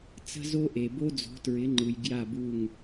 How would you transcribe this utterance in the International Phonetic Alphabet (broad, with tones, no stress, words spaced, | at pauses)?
t͡sə̤˦zo˦ʔe˨ bo˦d͡zo̤˨˦tɹɪ˨˦ŋ͡ǃɯ˨j ɡja˦˨bu˦˨ŋ